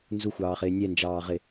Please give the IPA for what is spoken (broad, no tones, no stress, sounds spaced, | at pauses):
n z u xʷ ɑː χ ɪː nʲ ɛ n d͡ʒ ɑː ʁ ɪ